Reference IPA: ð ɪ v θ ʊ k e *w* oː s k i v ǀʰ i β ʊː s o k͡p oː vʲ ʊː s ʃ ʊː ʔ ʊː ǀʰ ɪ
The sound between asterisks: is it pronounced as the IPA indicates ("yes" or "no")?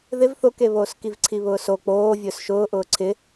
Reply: no